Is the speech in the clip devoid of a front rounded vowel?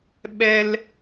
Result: yes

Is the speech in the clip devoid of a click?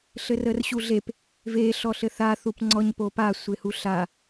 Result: no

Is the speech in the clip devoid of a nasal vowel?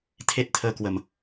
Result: yes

